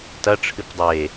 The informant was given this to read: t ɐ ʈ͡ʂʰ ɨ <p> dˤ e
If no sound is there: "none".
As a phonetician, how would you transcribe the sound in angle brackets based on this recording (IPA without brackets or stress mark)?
p